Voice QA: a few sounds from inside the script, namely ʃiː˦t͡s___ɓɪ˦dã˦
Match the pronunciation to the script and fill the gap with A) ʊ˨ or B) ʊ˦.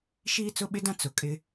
B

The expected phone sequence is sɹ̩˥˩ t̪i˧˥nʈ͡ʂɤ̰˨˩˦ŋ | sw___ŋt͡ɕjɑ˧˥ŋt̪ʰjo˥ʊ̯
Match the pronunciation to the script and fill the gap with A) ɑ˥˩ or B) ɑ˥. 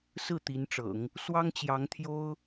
B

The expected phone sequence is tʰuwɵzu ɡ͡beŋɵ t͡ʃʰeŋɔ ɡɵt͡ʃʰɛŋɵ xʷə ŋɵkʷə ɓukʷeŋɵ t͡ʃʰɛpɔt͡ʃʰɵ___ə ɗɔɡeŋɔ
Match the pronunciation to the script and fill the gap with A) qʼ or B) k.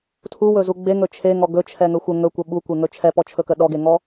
B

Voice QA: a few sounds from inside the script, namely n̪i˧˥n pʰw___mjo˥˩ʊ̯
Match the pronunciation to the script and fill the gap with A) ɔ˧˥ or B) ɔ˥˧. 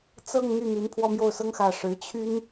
B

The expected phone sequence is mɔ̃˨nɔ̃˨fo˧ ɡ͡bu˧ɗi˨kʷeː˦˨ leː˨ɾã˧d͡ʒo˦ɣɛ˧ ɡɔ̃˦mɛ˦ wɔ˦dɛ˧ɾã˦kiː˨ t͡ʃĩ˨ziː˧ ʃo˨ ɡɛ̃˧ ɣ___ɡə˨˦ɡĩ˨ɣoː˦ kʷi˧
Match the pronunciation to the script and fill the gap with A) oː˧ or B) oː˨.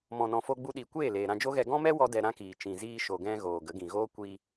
B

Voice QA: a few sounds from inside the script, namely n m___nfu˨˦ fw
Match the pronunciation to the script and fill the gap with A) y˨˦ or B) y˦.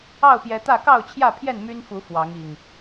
B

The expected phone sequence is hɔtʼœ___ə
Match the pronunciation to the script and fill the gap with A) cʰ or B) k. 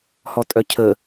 A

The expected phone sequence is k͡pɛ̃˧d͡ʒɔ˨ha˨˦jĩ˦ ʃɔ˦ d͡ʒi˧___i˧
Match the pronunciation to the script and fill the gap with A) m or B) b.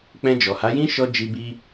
B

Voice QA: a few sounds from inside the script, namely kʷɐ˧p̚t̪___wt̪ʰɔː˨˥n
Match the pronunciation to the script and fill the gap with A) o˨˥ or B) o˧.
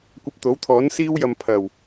A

